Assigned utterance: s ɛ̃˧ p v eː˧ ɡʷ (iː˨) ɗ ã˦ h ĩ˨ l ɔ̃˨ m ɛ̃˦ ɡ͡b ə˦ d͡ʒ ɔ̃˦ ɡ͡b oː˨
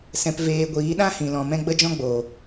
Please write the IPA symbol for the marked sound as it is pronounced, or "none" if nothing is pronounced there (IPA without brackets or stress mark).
iː˨˦